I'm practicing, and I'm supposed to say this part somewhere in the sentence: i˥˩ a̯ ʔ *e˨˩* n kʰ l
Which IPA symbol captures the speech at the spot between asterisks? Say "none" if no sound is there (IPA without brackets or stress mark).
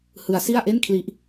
e˥˩